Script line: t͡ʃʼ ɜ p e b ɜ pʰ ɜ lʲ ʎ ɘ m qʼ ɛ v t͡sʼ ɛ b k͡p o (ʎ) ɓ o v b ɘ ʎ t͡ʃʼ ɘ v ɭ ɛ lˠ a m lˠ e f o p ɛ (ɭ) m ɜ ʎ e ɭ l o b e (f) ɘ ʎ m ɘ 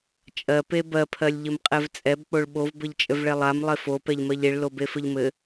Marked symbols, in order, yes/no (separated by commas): no, no, yes